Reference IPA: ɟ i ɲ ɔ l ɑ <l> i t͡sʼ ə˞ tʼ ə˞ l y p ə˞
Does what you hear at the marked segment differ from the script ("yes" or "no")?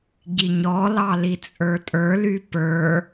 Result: no